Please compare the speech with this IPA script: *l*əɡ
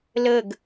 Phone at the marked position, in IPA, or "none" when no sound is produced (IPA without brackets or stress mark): l